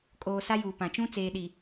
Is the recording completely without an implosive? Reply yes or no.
no